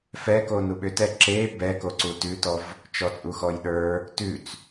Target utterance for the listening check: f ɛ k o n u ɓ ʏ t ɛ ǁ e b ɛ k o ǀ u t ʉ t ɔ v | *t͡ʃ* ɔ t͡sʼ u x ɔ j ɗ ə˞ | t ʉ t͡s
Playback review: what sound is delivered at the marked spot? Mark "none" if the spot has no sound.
t͡ʃ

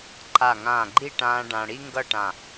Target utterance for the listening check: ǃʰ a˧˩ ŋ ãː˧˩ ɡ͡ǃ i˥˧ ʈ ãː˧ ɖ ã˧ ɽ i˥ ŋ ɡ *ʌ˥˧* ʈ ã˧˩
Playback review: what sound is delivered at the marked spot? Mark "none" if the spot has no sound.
ʌ˥˧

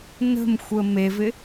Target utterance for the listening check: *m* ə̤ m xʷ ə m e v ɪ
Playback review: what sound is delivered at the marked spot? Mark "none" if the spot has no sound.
n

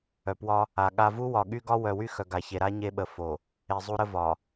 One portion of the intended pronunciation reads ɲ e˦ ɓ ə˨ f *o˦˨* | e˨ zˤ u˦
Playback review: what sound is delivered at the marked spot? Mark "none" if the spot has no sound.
o˨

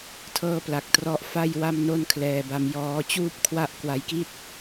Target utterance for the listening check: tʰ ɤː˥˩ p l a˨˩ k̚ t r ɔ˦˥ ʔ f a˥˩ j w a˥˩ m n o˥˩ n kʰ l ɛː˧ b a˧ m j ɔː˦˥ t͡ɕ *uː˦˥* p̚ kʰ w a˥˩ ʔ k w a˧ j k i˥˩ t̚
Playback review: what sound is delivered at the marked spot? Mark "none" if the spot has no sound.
uː˥˩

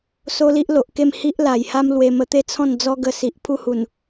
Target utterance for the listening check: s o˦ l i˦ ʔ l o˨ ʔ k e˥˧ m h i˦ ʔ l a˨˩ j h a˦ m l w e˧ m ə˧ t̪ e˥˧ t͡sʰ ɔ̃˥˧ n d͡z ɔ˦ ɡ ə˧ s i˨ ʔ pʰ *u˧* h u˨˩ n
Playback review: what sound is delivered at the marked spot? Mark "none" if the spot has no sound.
u˦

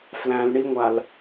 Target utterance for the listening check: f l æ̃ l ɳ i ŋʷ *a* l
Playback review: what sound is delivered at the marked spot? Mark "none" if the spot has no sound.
a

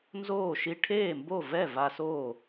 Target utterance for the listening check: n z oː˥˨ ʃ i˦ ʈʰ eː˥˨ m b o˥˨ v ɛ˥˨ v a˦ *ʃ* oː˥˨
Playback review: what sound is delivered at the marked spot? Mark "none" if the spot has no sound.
s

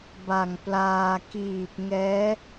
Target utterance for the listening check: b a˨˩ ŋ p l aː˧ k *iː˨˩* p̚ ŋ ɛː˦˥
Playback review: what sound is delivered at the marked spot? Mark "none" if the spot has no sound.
iː˨˩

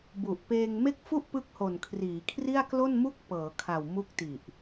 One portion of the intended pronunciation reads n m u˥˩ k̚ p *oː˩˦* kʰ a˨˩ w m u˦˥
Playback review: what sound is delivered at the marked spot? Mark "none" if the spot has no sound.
ɤː˩˦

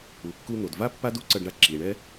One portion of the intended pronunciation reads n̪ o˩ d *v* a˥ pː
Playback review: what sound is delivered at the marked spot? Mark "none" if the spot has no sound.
v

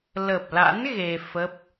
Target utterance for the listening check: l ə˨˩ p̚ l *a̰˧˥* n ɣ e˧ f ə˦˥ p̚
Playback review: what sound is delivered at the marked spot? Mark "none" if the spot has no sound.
a̰˧˥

